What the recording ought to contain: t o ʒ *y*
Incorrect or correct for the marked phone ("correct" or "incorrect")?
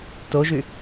correct